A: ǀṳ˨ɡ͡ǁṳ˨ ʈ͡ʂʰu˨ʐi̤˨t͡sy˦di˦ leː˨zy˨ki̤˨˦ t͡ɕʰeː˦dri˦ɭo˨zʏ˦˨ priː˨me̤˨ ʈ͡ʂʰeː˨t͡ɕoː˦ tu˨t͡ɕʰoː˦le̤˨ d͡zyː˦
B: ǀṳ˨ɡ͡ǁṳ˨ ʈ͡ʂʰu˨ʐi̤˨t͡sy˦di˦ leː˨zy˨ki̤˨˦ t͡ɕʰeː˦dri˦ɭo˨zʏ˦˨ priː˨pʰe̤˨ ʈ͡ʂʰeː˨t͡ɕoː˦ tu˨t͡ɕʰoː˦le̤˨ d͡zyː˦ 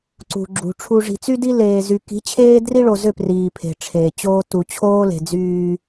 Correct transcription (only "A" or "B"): B